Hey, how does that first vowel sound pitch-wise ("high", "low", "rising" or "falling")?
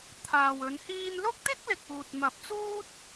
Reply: low